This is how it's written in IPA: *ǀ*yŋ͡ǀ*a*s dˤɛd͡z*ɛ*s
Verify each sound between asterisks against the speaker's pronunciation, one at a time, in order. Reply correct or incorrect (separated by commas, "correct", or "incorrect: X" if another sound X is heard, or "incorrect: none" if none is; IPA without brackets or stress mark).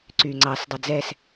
correct, incorrect: ɑ, correct